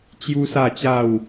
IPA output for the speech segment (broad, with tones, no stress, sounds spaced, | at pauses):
t͡ɕ j u˦ s a˥˧ t͡ɕ a˥˧ w